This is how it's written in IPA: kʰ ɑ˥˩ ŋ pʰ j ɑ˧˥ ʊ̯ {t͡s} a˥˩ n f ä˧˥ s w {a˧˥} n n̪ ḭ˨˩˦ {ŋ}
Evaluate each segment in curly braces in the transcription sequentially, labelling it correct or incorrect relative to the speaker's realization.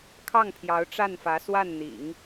incorrect: ʈ͡ʂ, incorrect: a˥˩, correct

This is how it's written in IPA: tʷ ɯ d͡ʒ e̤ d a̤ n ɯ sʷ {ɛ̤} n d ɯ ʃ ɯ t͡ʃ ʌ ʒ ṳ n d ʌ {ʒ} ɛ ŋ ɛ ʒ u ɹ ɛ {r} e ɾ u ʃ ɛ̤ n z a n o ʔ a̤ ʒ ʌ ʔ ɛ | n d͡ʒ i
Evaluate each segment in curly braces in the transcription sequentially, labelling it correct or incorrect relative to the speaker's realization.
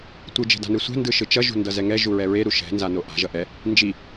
correct, incorrect: z, incorrect: ɹ

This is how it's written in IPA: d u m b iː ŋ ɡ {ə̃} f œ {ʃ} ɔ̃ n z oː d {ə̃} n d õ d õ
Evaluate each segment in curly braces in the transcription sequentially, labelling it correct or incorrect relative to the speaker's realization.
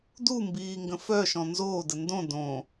correct, correct, incorrect: ə

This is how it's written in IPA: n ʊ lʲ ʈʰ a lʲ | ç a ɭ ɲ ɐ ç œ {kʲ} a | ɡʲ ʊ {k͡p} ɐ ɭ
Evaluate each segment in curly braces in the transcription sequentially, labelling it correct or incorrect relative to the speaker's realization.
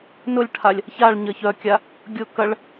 correct, incorrect: k

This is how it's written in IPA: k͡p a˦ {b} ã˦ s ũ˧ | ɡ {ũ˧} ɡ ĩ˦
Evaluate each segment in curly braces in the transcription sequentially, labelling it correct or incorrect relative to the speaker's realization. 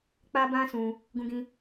correct, incorrect: ũ˦

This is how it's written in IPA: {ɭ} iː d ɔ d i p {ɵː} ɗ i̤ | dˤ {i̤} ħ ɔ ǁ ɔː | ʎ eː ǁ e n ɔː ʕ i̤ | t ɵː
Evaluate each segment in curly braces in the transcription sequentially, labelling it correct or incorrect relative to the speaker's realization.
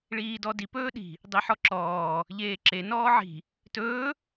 correct, correct, incorrect: i

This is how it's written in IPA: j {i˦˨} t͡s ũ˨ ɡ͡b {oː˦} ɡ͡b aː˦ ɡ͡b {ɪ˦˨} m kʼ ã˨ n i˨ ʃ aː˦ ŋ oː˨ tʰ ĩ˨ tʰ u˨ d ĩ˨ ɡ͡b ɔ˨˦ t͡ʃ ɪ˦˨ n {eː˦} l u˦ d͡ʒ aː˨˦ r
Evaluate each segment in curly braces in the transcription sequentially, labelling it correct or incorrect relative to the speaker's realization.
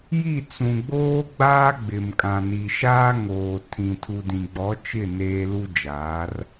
correct, correct, incorrect: ɪ˨, correct

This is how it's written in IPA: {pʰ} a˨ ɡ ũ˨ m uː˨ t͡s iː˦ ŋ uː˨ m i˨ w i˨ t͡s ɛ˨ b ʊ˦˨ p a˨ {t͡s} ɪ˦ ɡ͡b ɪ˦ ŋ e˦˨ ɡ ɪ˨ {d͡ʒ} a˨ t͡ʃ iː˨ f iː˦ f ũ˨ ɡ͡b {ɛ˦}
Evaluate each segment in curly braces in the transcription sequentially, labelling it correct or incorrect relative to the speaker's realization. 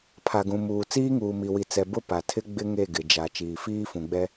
correct, incorrect: tʰ, correct, correct

